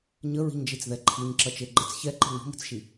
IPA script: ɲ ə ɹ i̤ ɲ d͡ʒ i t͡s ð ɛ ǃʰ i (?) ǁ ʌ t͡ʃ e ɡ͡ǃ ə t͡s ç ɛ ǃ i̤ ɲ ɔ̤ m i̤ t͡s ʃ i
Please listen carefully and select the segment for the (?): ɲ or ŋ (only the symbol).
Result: ɲ